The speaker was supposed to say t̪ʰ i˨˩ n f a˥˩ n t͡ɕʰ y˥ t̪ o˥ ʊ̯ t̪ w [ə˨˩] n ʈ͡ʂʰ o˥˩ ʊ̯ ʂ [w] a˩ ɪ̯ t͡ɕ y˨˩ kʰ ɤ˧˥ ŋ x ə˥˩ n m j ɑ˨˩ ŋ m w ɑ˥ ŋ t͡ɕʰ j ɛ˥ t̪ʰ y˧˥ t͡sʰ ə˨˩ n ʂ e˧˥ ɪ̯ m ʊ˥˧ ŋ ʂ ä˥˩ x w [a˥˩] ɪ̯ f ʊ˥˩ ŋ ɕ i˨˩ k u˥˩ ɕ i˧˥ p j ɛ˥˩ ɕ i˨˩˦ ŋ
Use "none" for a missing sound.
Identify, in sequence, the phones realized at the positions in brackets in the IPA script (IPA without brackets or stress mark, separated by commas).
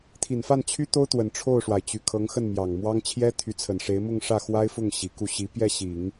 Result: ə˨˩, w, a˥